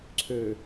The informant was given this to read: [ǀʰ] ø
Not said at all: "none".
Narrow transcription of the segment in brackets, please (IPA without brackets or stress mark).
ǀʰ